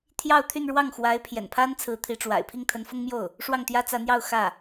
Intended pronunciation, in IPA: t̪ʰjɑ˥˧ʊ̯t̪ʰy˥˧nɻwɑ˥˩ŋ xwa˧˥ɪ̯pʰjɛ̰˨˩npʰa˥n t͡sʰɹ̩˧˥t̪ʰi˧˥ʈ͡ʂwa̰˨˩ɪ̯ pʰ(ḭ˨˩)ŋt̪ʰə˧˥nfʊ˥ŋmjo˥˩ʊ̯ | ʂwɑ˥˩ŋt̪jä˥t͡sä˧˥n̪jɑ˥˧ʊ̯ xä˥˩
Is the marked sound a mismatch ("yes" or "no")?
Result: yes